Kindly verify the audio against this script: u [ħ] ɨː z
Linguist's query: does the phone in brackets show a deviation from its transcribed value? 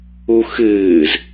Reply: yes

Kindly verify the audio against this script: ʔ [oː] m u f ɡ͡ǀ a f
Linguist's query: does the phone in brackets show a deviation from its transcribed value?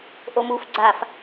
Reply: yes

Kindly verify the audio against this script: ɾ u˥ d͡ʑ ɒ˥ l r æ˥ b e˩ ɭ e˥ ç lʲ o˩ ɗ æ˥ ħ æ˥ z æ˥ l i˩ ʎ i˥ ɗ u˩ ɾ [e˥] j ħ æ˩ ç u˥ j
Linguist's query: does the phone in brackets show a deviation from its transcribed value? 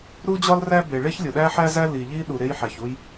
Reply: no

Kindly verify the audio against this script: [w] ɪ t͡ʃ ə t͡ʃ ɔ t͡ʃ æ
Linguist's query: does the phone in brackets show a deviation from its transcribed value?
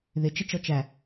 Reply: yes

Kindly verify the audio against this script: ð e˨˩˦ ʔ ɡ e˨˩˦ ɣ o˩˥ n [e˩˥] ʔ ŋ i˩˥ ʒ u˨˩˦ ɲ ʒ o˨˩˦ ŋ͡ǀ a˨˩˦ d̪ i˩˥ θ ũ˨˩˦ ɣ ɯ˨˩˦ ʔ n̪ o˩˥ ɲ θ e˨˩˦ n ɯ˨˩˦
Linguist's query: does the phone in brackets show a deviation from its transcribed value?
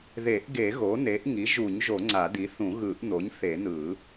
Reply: no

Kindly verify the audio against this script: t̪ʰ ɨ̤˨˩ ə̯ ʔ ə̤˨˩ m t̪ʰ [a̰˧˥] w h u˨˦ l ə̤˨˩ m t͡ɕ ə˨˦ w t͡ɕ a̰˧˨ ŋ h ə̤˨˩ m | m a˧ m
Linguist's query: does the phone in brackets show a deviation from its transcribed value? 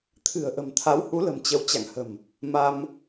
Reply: yes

